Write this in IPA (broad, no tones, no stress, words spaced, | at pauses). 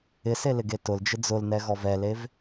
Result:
ɪselɪɡe tʊld͡ʒɪ d͡zʊlnɛɣɔv ɛlev